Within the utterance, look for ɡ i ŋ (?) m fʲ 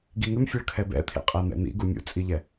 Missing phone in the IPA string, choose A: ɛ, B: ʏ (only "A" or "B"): B